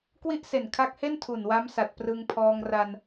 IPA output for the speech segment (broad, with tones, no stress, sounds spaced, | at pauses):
k w i˥˩ ʔ s e˨˩ n kʰ a˦˥ k̚ h e˥˩ n tʰ u˨˩ n w a˦˥ m s a˨˩ t̚ p r ɯ˧ ŋ pʰ ɔː˧ ŋ r a˧ n